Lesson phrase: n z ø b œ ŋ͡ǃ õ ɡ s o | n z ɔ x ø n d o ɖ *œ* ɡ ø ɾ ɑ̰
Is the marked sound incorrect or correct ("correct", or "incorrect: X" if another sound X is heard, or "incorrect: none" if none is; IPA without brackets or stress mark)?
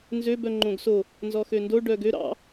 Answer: correct